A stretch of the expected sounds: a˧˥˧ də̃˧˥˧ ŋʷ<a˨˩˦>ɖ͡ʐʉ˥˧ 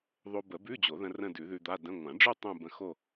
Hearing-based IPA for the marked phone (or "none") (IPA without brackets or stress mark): ã˨˩˦